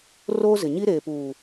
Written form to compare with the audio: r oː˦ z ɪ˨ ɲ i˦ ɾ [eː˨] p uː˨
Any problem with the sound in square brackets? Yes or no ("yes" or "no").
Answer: no